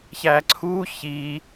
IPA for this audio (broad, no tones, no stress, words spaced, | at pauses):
çæǀʰuː çiː